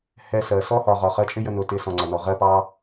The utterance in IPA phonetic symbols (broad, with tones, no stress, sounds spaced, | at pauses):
h ɛ˧ s ɜ˨ s ɔ˦ h ɒ˨ ʁ ɒ˨ χ ɜ˧ t͡ʃʼ ɪ˦ j ə˧ n ʊ˨˦ t ɪ˨˦ s ɔ̃˨ ŋ͡ǀ ʌ˨ n ɔ˨ ʁ ɜ˦ p ɑ˦